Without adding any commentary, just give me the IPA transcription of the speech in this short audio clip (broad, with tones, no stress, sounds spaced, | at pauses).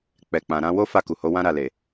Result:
k͡p ɛ˨ k͡p ã˨ ɾ ã˧ w o˦ f a˦˨ k u˨ h o˨˦ w ã˦ ɾ a˦˨ l e˨